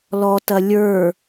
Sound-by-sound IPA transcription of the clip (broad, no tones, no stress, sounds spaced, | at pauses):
l ɔ t ɐ lʲ ə˞